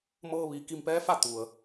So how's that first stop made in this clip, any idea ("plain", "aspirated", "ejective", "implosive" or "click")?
plain